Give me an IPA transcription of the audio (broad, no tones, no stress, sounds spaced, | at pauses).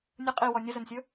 nʲ ə qʼ i w ɔ nʲ ə z ɵ n sʲ ɵ